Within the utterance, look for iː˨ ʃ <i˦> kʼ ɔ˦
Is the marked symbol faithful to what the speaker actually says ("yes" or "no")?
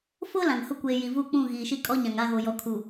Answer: yes